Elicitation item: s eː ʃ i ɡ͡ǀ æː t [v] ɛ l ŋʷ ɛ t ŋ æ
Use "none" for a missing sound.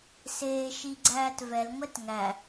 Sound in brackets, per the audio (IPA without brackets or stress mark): v